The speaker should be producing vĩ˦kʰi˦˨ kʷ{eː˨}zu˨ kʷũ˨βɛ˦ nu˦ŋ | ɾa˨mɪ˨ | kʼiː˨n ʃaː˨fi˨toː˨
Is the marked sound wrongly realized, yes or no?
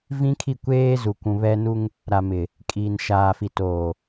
yes